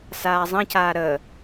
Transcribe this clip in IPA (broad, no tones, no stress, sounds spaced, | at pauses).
s aː zˤ ə̃ c aː ɾ ə